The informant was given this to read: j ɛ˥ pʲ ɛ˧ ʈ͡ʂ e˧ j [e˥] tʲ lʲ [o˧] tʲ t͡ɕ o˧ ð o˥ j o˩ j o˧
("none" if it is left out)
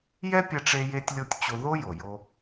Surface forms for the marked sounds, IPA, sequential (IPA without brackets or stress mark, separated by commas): e˧, o˧